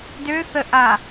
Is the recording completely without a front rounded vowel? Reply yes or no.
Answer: no